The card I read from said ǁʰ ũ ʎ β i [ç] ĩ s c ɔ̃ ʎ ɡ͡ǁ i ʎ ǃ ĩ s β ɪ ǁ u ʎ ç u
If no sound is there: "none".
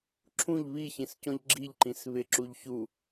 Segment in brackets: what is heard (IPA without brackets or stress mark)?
ç